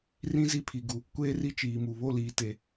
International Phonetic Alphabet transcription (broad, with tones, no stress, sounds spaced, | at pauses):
r ĩ˦ z i˦˨ pʰ i˨ ɡ u˨ | kʷ eː˦ r i˦ t͡ʃ iː˨ m u˨ β o˦˨ l iː˨ t e˨